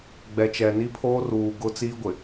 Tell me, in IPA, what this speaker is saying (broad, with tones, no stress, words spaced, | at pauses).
ɡ͡bɛ˨t͡ʃɛ˨ ni˦pʰoː˦ruː˨ ɡʊ˦t͡siː˦ɡʷɪ˨